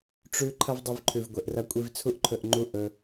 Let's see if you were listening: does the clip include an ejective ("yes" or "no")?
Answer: yes